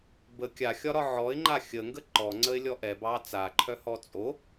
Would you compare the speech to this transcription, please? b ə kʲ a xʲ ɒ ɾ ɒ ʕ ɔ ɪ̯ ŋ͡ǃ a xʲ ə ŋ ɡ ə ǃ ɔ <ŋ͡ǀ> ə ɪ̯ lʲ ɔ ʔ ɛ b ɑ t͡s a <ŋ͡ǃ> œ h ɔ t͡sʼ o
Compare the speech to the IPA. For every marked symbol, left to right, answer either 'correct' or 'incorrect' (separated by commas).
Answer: correct, incorrect